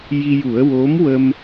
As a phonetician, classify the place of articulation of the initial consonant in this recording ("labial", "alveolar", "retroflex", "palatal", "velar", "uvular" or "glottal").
palatal